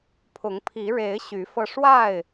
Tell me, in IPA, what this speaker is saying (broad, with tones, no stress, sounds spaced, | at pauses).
pʰ ʊ˨˦ ŋ pʰ i˨˦ ɻ e˨˦ ɪ̯ ɕ y˨˦ f ɤ˧ ʂ w a˥˨ ɪ̯